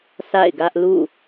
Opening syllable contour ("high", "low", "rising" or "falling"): falling